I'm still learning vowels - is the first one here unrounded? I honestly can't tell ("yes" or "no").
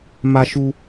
yes